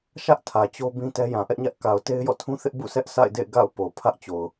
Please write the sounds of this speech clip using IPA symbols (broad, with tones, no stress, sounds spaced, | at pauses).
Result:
ʃ ä˦ ʔ tʰ ä˨ t͡ɕ o˦ b ĩ˦ t ɛ˦ j ã˨ ʔ ɛ˦ ʔ ɲ ä˦ ʔ k a˨ ʊ̯ t e˦ ɪ̯ j ɔ̰˦˨ tʰ ũ˦ θ ɪ˦ ʔ b ṵ˦˨ s ɛ˦ ʔ sʰ a̰˦˨ ɪ̯ d ḛ˦˨ ɪ̯ ɡ a̰˦˨ ʊ̯ p o˨ pʰ ä˦ ʔ t͡ɕ o˨ ʊ̯